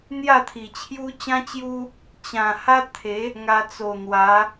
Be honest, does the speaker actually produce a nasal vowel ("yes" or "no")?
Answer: yes